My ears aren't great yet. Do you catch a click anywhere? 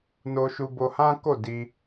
no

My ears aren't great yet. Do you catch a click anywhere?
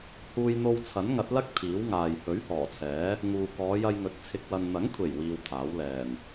no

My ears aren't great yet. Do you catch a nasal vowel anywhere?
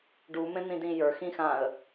yes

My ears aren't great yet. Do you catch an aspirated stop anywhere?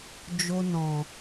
no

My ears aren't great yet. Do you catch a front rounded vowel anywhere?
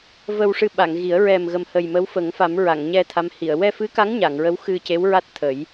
no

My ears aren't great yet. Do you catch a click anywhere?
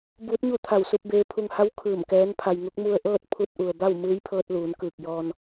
no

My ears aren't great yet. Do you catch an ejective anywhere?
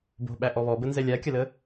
no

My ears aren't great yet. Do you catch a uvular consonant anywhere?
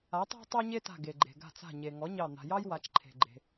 no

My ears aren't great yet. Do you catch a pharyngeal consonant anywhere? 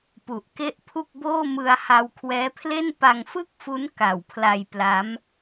no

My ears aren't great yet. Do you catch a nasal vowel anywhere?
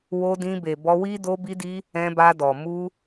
yes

